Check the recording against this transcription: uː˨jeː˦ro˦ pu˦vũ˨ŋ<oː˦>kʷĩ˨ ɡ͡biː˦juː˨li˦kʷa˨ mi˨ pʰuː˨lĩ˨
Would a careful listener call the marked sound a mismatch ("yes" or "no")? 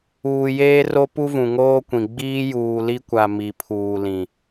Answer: no